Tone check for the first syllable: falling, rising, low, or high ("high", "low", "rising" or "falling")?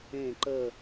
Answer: falling